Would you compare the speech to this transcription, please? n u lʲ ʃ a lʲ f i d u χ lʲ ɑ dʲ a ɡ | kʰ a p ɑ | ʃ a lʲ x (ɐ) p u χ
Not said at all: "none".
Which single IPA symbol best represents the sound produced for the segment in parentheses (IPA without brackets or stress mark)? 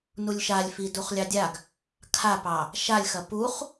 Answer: ɐ